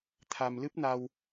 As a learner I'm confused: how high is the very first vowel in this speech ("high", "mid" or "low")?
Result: low